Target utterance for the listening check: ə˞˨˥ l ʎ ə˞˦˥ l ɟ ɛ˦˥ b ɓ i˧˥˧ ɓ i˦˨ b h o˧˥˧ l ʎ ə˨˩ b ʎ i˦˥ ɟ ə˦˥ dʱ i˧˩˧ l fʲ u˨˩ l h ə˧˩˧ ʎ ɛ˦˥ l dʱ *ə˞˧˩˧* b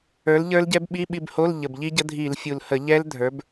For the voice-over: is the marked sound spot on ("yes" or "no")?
no